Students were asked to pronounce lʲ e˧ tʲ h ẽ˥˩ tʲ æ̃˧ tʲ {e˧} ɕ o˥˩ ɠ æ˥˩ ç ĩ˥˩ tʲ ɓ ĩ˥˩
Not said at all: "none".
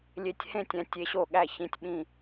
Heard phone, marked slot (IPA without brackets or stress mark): e˧